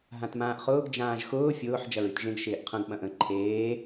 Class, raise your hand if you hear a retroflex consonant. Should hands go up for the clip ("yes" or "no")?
no